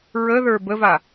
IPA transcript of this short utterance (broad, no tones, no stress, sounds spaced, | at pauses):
ɹ ə ð ə˞ b ə v a